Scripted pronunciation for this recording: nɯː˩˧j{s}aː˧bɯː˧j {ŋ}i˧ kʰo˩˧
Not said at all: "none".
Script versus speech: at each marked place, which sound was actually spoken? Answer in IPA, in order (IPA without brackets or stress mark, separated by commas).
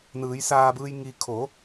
s, ŋ